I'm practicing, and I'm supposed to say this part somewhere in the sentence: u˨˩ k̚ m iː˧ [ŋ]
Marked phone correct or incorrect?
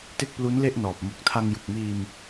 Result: incorrect